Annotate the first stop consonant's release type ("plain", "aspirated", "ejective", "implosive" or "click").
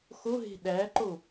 implosive